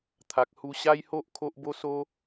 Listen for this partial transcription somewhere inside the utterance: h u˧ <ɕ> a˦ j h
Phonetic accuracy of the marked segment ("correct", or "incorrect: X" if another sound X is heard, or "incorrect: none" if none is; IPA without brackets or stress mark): correct